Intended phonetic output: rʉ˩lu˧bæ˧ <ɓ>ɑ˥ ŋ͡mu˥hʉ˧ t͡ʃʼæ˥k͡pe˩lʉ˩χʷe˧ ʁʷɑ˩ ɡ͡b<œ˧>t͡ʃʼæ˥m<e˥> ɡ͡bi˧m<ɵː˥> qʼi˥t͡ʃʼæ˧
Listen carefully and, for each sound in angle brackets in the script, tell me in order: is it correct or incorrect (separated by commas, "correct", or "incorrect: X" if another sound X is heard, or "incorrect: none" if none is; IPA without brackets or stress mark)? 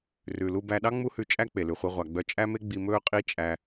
incorrect: ɗ, correct, correct, correct